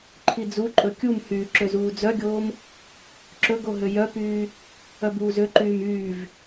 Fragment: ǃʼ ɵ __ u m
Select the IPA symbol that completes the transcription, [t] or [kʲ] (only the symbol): kʲ